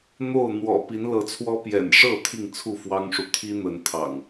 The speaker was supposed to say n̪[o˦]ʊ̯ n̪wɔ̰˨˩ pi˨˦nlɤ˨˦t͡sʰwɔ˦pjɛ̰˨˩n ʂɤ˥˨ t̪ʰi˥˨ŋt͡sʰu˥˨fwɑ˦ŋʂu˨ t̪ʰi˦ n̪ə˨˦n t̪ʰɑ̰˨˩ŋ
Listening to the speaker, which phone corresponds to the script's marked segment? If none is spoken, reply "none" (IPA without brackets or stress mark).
o˥˨